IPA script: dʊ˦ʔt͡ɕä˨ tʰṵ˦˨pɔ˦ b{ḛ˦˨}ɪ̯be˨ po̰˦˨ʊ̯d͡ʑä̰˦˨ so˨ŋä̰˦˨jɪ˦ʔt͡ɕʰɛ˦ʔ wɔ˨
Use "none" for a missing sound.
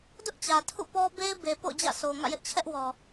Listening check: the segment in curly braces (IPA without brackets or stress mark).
e˦